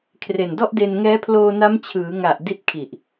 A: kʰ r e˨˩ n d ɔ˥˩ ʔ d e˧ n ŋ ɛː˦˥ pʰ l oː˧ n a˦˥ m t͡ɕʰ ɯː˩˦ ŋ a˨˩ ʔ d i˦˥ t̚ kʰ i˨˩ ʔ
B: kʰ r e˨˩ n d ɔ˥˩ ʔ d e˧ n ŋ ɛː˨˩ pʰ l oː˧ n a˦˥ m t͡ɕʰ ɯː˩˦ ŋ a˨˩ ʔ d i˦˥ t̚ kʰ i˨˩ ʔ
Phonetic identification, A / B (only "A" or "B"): A